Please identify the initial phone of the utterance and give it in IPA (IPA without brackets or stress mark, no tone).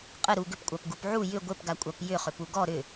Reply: qʼ